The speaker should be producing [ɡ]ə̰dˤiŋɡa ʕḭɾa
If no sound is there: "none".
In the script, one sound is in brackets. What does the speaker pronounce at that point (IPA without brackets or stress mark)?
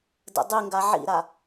d